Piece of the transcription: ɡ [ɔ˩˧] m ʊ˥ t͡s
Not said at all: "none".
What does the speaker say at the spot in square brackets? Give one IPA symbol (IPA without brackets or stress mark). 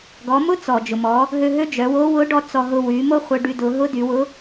ɔ˩˧